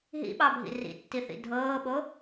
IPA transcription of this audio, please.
ɦ ḭ ɓ ɑ bʱ ḭ r ḭ tː i θ ḭ dʱ ɤː ɓ o

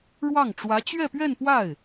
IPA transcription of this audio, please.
ɻ w ɑ˥˩ ŋ ʈ͡ʂ w ä˧˥ t͡ɕ ɥ ɛ˥˧ p ɥ ɛ˥˧ n p w a˥˩ ɪ̯

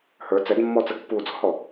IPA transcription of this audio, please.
h ə˞ t͡s ɛ d mː ɔ t͡s ə ɡ pː uː d͡z ɔ̤ h ɔ

